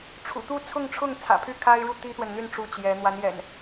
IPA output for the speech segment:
ʈ͡ʂʰṵ˨˩t̪u˥˨ t͡sʰʊ˥˨ŋʈ͡ʂʰʊ˥˨ŋ t͡sʰä̰˨˩pʰy˥˨kʰa˦ɪ̯ɻu˥˨ t̪i˦t̪wə˨nn̪y˥˨n ʈ͡ʂu˥˨t͡ɕjɛ˨˦ n̪wa˨˦njɛ̰˨˩n

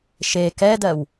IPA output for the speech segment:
ʃe kɛdɜw

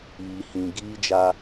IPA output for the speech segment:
iː˨hĩ˨ ɡiː˦d͡ʒa˦

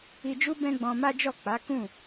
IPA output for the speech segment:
i˧d͡ʒu˦ bɛ̃˦ɡ͡bɔ̃˧ma˦d͡ʒɔ˦˨ k͡pa˨˦kũ˦˨

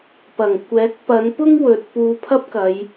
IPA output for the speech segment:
pɐ˨˩ŋkʷɛː˨˥k̚ pɐ˨˧npʊ˥ŋ wɵ˨t̚puː˧pʰɐ˥p̚kɐ˨˧j

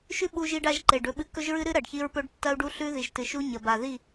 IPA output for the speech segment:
ʃʉ˦ɓu˧ʒi˧ɖa˧ʒ ǃe˨ɖɵ˧ɓɨ˧ kɵ˦ʒɹɨ˦ɾɨ˦ ɾɐ˨ɖçi˧ɹpɵ˧ɖ tːɐ˦u̯ɖu˦ɬʉ˦ ði˨ʒtɨ˨ʃu˦ ɲɐ˨ba˨ði˦˨

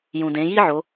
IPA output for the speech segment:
jũ˩dẽ˩˧ji˥ʕo˩˧

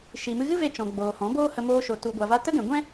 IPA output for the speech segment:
ʃi˨mɨ˧ ɣɨ˦ve˧ t͡ʃɔ̃˨ ɡ͡boː˨hɔ̃˨˦boː˦hə˧ moː˧ʃo˨ tu˨ɡʷa˨va˧ tə˦ɡɛ̃˨ ɡʷɛ̃˦

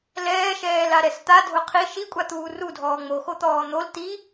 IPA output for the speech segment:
lɛːʃɛːlaɾɛs t̪adʱʊ qʰi ʃikʷʼat̪uː rudʱɔː ŋ͡moxot̪ɔː n̪ol t̪i

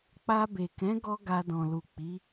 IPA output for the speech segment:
k͡pa˧be˨kɛ̃˨˦ɡɔ˧ ɡa˧dɔ̃˨lu˨ k͡pi˨˦

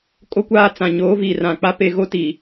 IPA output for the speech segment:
kʼo˦kʷaː˦t͡sã˨ ɲoː˨˦ viː˨rã˨ k͡pa˦pe˦˨ɣo˦ tiː˨

